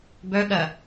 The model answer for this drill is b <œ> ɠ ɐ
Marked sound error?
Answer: no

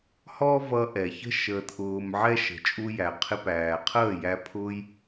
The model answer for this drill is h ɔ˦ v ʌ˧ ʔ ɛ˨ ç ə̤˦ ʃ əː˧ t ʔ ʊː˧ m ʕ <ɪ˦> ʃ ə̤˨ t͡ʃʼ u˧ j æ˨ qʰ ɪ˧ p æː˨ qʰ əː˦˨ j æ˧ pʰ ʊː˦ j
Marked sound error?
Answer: yes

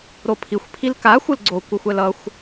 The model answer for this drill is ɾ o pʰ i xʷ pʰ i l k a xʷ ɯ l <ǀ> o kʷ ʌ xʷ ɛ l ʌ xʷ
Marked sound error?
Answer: yes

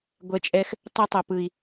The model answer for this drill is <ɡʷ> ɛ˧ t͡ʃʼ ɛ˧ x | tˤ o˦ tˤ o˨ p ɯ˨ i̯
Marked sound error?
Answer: no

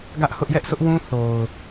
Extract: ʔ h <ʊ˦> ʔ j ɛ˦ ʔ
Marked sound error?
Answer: no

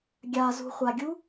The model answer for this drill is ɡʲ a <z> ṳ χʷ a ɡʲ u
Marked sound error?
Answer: no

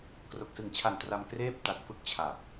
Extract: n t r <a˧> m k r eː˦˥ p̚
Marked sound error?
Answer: no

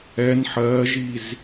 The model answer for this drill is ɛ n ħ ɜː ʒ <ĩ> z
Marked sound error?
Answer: yes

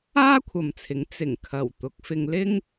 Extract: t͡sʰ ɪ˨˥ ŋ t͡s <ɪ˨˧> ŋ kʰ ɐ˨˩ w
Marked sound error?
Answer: yes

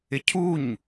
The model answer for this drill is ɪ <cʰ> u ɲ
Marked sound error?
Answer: no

